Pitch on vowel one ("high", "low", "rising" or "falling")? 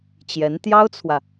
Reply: rising